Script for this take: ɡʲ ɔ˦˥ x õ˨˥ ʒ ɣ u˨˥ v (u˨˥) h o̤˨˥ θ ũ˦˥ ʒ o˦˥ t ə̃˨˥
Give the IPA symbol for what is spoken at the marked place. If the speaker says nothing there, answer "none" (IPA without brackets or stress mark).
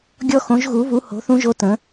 u˨˥